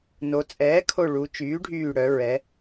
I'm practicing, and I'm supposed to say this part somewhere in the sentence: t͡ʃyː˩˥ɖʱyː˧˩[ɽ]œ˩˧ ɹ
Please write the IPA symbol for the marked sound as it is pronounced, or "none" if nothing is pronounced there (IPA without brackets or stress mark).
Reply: ɽ